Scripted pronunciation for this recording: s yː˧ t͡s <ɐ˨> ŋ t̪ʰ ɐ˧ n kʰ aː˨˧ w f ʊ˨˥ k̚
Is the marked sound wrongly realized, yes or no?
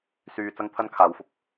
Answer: yes